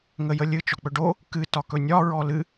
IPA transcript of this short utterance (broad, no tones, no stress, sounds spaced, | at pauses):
ŋ ə j ə lʲ ɨ t͡ʃ ɔ k͡p ɵ ɖ o | k ɨ t ɒ k ɵ nʲ ɒ ɹ ɔ l ɨ